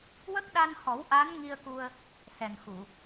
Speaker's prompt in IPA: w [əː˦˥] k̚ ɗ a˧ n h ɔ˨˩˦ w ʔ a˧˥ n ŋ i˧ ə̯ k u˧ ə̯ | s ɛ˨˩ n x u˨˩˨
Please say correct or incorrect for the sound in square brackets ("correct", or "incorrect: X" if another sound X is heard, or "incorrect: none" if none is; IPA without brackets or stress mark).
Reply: incorrect: ə˦˥